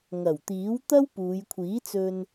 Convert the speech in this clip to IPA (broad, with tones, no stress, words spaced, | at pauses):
ŋɐ˨˩wt̪iː˨˥wt̪ɐ˥w puː˨˧jkʷʰiː˨˥t͡sɵ˧n